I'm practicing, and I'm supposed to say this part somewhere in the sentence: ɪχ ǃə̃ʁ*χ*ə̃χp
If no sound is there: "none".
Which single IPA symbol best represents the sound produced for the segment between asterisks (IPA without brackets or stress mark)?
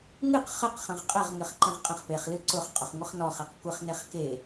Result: qʼ